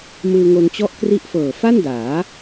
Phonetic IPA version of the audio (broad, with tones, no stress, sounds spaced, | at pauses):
m ɯː˧ ŋ o˧ n t͡ɕ ɔ˦˥ ʔ k r i˦˥ ʔ f ɤː˨˩ f a˥˩ n d aː˩˦